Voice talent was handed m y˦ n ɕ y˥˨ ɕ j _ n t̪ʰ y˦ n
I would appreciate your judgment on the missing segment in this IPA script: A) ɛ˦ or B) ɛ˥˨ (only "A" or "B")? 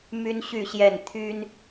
B